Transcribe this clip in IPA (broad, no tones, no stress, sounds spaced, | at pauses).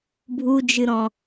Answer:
bʱ u d͡ʒ ɨ ɾ ɔ̃